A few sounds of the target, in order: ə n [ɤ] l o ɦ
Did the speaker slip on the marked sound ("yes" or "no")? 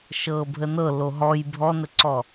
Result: no